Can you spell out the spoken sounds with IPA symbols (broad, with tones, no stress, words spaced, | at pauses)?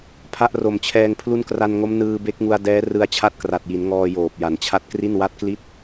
pʰa˦˥ʔro˨˩mt͡ɕʰɛː˧ŋ pʰlu˦˥nkra˧nŋo˦˥m nɯː˧be˦˥k̚ŋu˧a̯dɛː˦˥ rɯ˧a̯t͡ɕʰa˥˩t̚kra˨˩t̚ji˩˦n ŋɔː˧ joː˨˩p̚ja˩˦nt͡ɕʰa˦˥t̚ kri˥˩nwa˥˩t̚kli˥˩t̚